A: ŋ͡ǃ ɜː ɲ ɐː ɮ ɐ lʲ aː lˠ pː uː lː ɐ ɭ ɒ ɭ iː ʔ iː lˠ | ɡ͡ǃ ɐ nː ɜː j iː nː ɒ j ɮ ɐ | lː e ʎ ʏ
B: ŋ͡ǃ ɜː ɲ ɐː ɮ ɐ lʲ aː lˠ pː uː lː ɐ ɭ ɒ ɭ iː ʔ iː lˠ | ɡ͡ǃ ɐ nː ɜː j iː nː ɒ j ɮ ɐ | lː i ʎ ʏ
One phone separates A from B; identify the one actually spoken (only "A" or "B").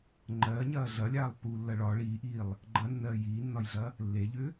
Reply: A